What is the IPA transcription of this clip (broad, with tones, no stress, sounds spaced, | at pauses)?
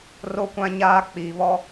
r o˦ kʷ ã˦ ɲ aː˦ k͡p iː˨ β ɔ˦